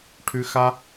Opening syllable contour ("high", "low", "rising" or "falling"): high